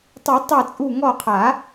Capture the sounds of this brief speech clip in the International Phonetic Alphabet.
tˤ u˨˩˦ tˤ ɛ˧˩ t͡sʼ u˧˩ ŋ ɔ˧˩ qʰ a˨˩˦

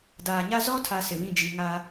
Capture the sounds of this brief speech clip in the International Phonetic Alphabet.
d aː˨ ɲ a˦ z ɔ˦ tʰ a˨ s ɪ˨ β ĩ˦˨ d͡ʒ i˨ ŋ a˦

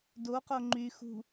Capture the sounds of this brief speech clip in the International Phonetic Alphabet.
d o q o ŋ͡ǃ y x ṳ

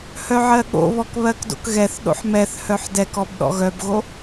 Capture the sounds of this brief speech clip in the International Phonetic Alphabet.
h œ ʕ ɜ ɠ o̰ β ɔ k β ɜ k d o̰ k ɣ ɛ θ ɗ o̰ ħ m ɛ θ h œ ħ d ɛ k ɔ b ɗ ɔ̰ ɣ œ b ɣ o

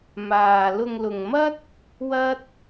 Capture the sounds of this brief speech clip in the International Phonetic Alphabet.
m aː˨ l ʊ˧ ŋ l ʊ˨ ŋ m ɐ˥ t̚ | w ɐ˥ t̚

